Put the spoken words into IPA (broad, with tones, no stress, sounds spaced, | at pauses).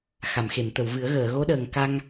x a˨˩˨ m x e˨˩˨ m t̪ ə˨˩˨ w v ɨ˨˩˦ ə̯ ɣ əː˨˩˨ ɣ o˧˥ ɗ əː˨˩ ŋ k a˧ ŋ